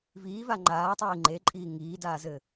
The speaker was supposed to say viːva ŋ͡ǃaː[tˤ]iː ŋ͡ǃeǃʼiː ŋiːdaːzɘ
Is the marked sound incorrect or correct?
correct